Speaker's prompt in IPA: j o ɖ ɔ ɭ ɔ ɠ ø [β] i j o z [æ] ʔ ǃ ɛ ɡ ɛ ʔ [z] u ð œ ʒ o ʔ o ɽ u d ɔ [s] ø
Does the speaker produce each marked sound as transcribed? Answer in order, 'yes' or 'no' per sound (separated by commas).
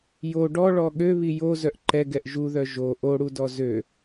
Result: yes, no, no, no